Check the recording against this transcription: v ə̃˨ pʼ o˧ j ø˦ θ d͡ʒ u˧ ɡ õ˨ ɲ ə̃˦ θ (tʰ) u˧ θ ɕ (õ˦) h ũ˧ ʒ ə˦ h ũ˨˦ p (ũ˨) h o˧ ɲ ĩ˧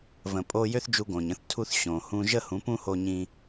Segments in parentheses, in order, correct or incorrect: correct, incorrect: õ˨, incorrect: ũ˦

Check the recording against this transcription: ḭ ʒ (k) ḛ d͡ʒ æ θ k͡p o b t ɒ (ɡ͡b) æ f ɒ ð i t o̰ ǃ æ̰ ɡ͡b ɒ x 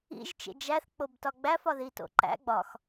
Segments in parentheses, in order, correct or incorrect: incorrect: t͡ʃ, correct

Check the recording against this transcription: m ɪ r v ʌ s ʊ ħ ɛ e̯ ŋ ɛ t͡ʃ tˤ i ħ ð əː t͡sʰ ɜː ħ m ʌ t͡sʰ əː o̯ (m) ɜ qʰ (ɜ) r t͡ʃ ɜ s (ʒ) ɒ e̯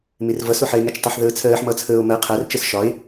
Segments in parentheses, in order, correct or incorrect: correct, incorrect: æ, incorrect: ʃ

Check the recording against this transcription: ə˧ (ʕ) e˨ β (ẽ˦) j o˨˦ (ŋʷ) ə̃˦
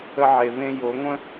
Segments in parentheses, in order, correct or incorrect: correct, incorrect: ẽ˧, correct

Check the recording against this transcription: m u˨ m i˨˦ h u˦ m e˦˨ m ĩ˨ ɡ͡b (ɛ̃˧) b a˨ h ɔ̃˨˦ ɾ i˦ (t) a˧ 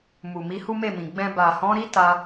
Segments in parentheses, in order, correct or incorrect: correct, correct

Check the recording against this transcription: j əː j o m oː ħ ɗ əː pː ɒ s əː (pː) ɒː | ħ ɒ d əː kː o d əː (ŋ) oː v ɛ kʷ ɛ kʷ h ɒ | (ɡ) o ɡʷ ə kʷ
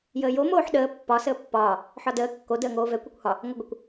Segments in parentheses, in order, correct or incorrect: correct, correct, incorrect: ŋ

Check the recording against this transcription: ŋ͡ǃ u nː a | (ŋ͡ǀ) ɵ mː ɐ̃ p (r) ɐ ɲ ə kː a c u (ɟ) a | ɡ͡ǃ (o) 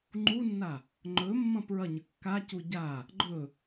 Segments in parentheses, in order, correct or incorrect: incorrect: ŋ͡ǃ, incorrect: ɹ, correct, incorrect: ɵ

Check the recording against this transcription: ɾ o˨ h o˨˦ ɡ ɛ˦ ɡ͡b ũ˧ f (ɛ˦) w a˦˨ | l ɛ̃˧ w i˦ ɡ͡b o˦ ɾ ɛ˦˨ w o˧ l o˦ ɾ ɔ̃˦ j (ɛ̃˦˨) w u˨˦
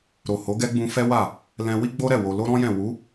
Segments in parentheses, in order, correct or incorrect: correct, correct

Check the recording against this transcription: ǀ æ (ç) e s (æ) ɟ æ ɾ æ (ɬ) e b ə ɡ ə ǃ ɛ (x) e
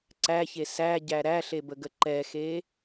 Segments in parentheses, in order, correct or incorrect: correct, correct, correct, correct

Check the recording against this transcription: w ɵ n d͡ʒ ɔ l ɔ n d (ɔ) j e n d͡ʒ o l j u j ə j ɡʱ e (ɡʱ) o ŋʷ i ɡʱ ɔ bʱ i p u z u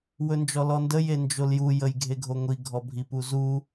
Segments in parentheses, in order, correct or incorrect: incorrect: ə, correct

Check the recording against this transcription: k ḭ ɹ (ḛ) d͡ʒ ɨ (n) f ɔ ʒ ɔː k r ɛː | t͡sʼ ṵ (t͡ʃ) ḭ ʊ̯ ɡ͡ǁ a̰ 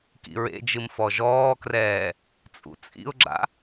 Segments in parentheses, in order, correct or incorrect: correct, incorrect: m, incorrect: t͡sʼ

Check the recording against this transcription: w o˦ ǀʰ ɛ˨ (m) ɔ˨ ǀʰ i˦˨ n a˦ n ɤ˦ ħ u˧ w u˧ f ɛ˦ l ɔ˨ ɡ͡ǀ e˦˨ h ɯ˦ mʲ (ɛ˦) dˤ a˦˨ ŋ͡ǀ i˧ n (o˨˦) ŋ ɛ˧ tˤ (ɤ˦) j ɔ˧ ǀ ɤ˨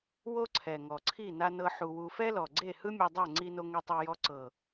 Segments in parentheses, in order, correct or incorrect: incorrect: ŋ, incorrect: ɛ˧, incorrect: o˧, incorrect: ɤ˧

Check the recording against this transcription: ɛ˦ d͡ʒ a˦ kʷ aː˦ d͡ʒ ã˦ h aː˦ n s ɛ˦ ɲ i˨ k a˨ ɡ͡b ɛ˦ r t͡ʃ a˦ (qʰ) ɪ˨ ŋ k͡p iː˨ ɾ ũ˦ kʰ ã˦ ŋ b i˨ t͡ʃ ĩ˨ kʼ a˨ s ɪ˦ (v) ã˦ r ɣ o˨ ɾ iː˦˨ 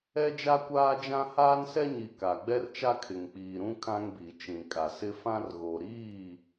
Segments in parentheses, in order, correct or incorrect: incorrect: kʰ, incorrect: f

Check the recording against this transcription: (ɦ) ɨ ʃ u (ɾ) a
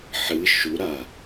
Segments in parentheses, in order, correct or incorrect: incorrect: ħ, correct

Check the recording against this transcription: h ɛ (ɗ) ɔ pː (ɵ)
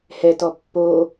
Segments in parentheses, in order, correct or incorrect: incorrect: t, incorrect: o

